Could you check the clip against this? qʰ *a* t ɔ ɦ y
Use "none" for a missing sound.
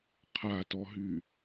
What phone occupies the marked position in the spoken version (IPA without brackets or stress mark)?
a